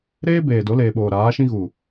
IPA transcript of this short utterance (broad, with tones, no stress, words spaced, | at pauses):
ɾeː˦ beː˨do˨˦leː˨ɓoː˨ ɾaː˨˦ʃĩ˦ɣu˨